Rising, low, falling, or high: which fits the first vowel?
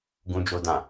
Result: high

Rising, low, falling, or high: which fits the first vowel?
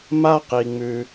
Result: high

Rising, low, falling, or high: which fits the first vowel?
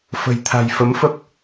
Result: low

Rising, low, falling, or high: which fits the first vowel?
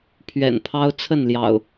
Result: low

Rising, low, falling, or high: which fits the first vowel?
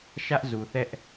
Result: high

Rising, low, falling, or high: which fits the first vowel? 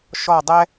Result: falling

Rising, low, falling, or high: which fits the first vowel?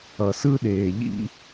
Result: low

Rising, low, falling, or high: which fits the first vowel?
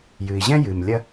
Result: low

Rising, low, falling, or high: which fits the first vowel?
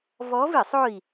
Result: rising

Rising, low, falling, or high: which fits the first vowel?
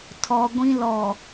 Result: low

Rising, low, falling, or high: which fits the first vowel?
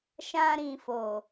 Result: high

